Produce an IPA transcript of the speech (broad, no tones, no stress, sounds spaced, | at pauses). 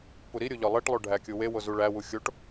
p u ɾ i ɾʲ o ʎ ɒ lˠ e ʈ lˠ o ɖʱ æ kʲ u w e w o z u ɭ æ w u xʲ o ʈ